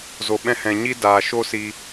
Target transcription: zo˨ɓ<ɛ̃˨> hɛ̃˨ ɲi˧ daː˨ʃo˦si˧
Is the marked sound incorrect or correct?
incorrect